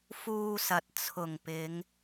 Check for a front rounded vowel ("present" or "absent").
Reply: absent